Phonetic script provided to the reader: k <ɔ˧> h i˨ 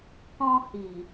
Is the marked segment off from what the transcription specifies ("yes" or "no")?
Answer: yes